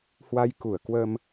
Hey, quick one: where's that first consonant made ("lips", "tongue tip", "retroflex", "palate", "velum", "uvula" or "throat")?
throat